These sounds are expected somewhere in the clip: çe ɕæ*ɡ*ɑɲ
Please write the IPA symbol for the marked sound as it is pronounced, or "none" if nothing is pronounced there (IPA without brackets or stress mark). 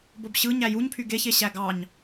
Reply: ɡ